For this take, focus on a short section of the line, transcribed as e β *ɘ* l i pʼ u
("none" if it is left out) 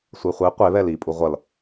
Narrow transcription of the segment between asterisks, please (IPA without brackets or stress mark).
ɛ